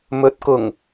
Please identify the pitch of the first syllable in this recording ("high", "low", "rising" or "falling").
rising